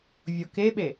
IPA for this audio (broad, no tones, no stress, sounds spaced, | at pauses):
vʲ o k e ɓ e